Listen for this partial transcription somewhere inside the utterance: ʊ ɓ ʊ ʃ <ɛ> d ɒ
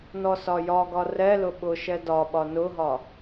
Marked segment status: correct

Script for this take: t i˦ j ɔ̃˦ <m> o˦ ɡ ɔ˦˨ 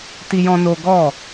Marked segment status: incorrect: n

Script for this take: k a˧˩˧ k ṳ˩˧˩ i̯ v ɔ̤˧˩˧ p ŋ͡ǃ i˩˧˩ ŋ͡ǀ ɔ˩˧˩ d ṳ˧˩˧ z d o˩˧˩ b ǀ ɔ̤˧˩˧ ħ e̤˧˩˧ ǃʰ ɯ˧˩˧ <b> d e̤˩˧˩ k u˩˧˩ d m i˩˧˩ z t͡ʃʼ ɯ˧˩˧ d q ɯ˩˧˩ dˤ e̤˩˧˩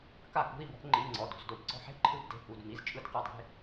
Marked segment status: correct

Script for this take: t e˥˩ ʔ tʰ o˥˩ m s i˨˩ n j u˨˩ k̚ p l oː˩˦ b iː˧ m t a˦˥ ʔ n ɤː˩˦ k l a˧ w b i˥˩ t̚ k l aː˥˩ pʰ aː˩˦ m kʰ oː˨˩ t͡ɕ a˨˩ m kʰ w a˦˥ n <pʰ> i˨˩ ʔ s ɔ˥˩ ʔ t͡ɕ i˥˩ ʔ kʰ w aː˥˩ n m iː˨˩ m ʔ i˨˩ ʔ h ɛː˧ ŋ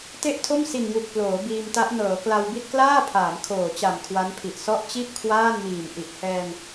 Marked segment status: correct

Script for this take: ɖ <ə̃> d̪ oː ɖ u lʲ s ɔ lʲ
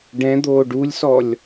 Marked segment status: incorrect: ɛ̃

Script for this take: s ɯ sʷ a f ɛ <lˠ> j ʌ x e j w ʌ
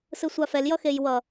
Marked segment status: incorrect: l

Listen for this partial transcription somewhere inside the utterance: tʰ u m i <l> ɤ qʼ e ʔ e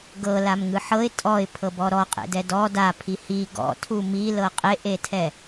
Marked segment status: correct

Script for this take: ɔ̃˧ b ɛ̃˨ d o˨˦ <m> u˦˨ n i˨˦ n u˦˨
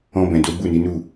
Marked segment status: incorrect: b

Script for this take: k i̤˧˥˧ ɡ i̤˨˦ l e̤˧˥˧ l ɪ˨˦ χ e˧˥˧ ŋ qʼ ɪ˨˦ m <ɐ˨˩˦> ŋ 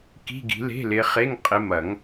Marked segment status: correct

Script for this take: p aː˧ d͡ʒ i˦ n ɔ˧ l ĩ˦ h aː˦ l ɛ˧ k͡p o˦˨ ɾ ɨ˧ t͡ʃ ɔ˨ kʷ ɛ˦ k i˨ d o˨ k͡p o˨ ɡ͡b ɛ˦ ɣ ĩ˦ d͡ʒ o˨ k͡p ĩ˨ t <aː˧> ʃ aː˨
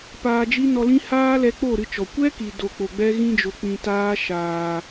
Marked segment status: correct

